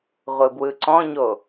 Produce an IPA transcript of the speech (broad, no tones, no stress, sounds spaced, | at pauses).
ʁʷ ɯ b w ɯ ǀ ɔ̃ ɲ o